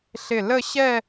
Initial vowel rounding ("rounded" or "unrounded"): unrounded